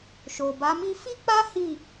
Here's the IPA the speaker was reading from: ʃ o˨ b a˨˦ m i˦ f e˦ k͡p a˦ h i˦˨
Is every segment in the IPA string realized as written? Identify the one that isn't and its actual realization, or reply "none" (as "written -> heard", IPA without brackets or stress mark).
e˦ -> i˦